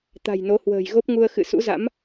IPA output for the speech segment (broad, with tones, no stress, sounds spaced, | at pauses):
t̪ a̤˨˩ j n o˨˦ h w ə̤ː˨˩ j ɣ o˦˥ p̚ ŋ u˧ ə̯ x ɨ̰˧˨ s ṵ˧˥ z a̰˧˥ m